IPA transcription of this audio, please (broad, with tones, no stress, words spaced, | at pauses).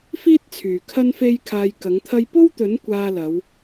fiː˥t̚t͡sʰyː˨˩ kʰɐ˥nfe˥jkʰaː˧jkɐ˨˥ŋ t̪ʰɐ˧jpo˥wt̪ɵ˨˥n kʷaː˧lɐ˨˧w